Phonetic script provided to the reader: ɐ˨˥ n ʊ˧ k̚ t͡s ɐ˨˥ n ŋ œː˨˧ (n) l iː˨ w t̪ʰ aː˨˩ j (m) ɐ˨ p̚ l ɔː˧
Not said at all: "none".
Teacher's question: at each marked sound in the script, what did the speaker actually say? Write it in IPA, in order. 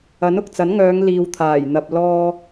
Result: ŋ, n̪

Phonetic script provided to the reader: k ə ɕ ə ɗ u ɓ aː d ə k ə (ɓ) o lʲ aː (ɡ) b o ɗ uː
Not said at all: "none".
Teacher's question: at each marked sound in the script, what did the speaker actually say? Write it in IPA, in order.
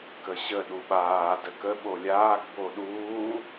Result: ɓ, ɡ

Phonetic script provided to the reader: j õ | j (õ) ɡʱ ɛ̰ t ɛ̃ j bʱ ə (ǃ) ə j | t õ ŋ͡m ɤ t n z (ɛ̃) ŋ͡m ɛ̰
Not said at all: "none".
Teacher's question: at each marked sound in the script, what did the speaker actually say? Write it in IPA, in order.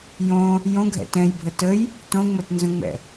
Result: õ, t, ə̃

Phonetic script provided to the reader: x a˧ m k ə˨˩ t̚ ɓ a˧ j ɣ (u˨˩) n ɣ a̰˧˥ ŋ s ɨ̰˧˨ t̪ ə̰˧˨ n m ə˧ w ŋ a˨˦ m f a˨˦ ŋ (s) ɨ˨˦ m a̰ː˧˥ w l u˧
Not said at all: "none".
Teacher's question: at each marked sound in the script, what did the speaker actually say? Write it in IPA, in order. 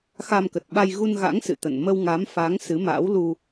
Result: u˧, s

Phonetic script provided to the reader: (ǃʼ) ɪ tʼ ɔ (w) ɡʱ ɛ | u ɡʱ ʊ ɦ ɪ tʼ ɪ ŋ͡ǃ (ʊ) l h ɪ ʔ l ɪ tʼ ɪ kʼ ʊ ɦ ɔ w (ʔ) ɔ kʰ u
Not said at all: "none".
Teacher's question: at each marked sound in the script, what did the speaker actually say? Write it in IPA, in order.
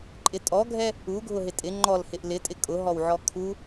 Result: ǃʼ, none, ɔ, ʕ

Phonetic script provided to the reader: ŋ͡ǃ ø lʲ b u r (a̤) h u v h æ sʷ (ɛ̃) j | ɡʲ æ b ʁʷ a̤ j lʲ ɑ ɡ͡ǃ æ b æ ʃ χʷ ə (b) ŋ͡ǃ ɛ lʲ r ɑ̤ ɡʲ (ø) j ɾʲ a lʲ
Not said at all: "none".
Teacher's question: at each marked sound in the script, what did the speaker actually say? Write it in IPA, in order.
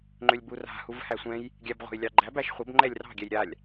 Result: a̤, ɛ̃, b, ɛ

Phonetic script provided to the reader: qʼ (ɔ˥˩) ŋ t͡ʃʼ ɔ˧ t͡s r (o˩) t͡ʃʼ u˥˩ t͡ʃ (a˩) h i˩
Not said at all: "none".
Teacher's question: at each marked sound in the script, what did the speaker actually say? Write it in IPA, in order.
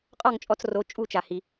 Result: ɔ˥˩, o˩˥, a˩

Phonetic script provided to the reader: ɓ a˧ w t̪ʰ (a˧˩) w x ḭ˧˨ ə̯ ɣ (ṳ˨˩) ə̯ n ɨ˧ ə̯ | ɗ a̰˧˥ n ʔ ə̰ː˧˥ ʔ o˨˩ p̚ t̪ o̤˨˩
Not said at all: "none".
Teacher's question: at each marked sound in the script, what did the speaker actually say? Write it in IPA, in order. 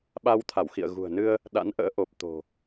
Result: a˧˩, ṳ˨˩

